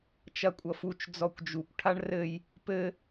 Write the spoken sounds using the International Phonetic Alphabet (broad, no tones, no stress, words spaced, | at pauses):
t͡ʃɐkʷʼʌfut͡ʃ d͡zɔkʷd͡ʒukʷ ʈʰaɳrɘj | pɘ